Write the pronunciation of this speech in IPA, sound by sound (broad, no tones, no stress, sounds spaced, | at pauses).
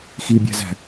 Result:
x i bʲ æ̤ z æ̤